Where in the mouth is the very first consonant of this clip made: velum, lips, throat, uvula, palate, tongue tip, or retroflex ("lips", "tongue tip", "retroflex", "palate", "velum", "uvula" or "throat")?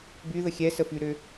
lips